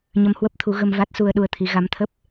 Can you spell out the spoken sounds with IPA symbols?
ɲ ə˧ m h w ə˦˥ p̚ t̪ʰ u˨˦ ɣ ə˧ m v a˦˥ t̚ s u˧ ə̯ ɗ u˧ ə̯ t̪ʰ i˨˦ ɣ a˨˦ m t̪ʰ ə˦˥ p̚

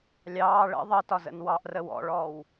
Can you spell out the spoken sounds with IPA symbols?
lʲ ɑː ɭ ə̰ ðˤ ə t ɒ z ə̰ n w ɑ ʔ r ə w ɔ̰ ɭ ɔː w

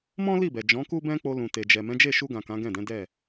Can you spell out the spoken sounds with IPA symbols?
m ɔ̃˦ l i˦˨ b ɛ˨ d͡ʒ ɔ̃˨˦ k u˦ b ɛ̃˦ k͡p o˧ l ũ˨ t e˨ d͡ʒ ɛ˨ m ɛ̃˨˦ d͡ʒ e˦˨ ʃ u˧ ɡ ã˨ k ã˨˦ ɡ ɛ̃˦˨ d ɛ̃˨˦ d ɛ˦˨

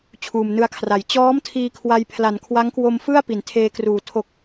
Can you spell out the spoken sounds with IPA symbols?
t͡ɕʰ uː˨˩ m n ɯ˧ a̯ kʰ r a˩˦ j t͡ɕ ɔː˦˥ m tʰ iː˧ kʰ w a˧ j pʰ l a˩˦ n kʰ w a˦˥ ŋ k w o˧ m f ɯ˥˩ a̯ p i˩˦ n tʰ eː˧ k r uː˨˩ tʰ o˨˩ k̚

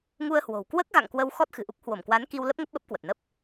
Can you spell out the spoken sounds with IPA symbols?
ŋ u˧ ə̯ h w o̤˨˩ w k w əː˦˥ k̚ ɣ a̰˧˨ ŋ k w ə˧ w x ɔ˦˥ t̚ x ɨ̤˨˩ ʔ u˦˥ k̚ h w o˧˩ m k w a˨˦ n k i˧ w l ə˦˥ p̚ ŋ ə˦˥ p̚ ɓ ə˦˥ p̚ k w ə˨˩ t̚ n ə˦˥ p̚

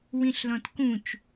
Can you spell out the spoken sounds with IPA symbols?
w ĩ ɬ l ɔ̃ t k ũ t͡ʃ

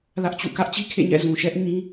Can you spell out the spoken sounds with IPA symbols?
l ä˦ ʔ t͡ɕ ṵ˦˨ k ä˦ ʔ t͡ɕ i˦ kʰ ḛ˦˨ ɲ ɛ̰˦˨ z ũ˨ ʃ ɛ˦ ʔ ɲ ĩ˦

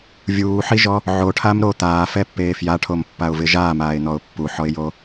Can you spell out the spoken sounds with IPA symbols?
vʲ uː ħ i ʒ ɔ | ʕ o ʈʰ a m ɾ o t̪ aː f ɛ pː eː f j a ʈʰ o m pː a ʊ̯ v ɪ ʒ aː m aː ɪ̯ n̪ ɔ ʊ̯ pː u ħ ɔ ɪ̯ j o

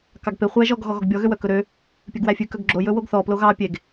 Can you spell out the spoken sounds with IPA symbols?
k ɑ ɡ p e χʷ æ ʒ ɔ ɡ ɣ ɔ ɣ ɔ ɡ bʲ ɔ ɣ ø w œ k ɵ ɾ ø | pʲ œ ɡ w æ fʲ ʉ k œ ɡ ɡ͡ǁ o j ɵ w o ɡ θ ɔ p l o ɣ ɑ pʲ e ɡ

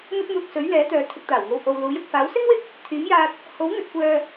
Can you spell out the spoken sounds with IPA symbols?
n̪ ɐ˧ t̚ m uː˨ k̚ s ɵ˨˥ ɥ l ɛː˨˥ t̪ œː˨ t̪ʰ ɪ˨ k̚ t̪ aː˨˩ w ŋ o˨ w h o˨ w l uː˨˥ j ʊ˨ k̚ f aː˨˥ w s ɪ˥ ŋ w ɪ˥ k̚ | t̪ʰ yː˨˥ m j aː˧ t̚ | h o˨˥ w n̪ ɵ˨ t̚ kʷ œː˨

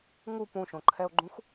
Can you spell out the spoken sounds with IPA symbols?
ŋ u p ũ ʃ õ ǃʰ ɛ o̯ ɡ͡ǃ ũ x

